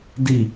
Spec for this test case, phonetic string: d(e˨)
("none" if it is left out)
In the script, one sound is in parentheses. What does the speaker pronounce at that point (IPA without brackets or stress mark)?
i˨